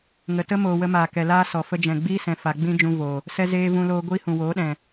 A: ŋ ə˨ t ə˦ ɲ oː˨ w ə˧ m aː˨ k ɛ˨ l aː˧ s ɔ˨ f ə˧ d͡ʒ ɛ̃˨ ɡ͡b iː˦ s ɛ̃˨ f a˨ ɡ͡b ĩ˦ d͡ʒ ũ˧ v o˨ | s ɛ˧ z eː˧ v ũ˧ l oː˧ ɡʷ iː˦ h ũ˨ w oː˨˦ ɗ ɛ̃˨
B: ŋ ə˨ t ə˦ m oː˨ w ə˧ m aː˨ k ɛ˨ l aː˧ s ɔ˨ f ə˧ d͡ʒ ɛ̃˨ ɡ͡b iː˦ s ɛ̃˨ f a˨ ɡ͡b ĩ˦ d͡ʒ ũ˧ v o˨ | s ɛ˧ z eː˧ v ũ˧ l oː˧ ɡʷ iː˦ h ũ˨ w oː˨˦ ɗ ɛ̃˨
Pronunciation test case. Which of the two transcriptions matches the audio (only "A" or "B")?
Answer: B